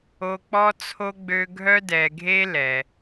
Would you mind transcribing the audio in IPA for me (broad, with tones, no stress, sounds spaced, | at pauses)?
o˧ k͡p ɔ˦ t͡sʰ o˦ ɡ͡b ø˦ ɡʱ œ˦ d ɛ˧ ɡʱ e˦ l ɛ˧